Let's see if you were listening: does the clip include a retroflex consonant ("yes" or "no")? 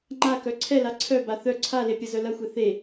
no